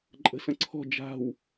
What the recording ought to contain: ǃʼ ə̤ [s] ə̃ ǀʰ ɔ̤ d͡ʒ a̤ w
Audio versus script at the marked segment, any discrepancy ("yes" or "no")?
no